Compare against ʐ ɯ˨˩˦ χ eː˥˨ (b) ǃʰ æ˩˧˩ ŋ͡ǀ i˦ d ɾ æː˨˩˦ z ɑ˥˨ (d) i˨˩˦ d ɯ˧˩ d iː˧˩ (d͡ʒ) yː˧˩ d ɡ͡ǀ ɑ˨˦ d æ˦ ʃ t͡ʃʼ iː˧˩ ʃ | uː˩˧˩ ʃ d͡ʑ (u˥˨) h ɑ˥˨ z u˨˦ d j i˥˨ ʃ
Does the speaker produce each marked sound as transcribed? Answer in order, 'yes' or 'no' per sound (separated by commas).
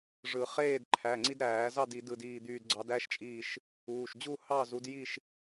no, yes, no, yes